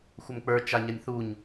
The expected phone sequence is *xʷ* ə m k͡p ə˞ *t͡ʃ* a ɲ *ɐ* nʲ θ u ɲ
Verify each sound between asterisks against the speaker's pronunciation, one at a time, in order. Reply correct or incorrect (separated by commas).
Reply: correct, correct, correct